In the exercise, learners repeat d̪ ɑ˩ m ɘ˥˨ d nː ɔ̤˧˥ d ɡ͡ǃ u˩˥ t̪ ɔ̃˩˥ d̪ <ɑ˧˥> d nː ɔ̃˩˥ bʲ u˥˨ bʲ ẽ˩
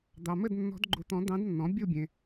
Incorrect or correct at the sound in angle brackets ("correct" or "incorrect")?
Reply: incorrect